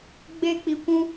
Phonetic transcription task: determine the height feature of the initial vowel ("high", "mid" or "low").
mid